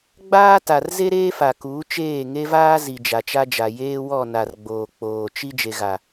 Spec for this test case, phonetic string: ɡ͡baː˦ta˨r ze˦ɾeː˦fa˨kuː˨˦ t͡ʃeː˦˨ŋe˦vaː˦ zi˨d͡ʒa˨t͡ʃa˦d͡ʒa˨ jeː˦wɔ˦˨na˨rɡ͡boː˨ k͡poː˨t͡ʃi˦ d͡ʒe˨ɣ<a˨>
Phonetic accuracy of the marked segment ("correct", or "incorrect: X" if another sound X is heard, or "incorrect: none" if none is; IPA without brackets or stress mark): correct